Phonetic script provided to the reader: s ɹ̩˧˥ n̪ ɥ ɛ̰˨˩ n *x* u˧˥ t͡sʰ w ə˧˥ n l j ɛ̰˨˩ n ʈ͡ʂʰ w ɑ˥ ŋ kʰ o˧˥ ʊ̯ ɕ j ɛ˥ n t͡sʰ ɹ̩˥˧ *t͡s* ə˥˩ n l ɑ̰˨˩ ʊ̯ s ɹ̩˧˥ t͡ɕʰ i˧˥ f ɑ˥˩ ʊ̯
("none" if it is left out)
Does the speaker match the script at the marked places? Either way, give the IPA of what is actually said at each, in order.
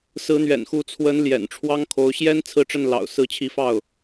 x, ʈ͡ʂ

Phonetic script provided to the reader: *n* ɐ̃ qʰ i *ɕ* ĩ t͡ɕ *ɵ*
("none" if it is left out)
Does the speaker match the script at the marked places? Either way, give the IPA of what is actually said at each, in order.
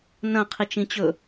n, t͡ʃ, ɵ

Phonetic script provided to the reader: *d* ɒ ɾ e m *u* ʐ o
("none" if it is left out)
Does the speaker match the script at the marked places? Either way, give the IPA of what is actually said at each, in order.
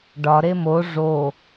ɖ, o

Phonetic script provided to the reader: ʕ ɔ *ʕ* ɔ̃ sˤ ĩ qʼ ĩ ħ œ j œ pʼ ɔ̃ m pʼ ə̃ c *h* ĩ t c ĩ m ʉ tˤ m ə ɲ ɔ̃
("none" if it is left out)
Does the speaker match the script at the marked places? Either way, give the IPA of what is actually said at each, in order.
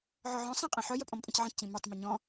ʕ, ʕ

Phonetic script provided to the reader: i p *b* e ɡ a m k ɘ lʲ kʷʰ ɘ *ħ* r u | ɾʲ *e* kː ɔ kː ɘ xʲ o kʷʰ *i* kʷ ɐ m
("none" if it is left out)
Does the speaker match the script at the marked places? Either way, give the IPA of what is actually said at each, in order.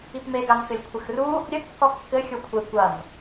m, x, ɘ, e

